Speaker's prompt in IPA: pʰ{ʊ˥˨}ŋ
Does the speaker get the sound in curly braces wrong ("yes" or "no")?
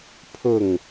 no